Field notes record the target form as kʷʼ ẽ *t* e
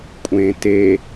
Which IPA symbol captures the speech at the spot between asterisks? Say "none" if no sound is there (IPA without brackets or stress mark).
t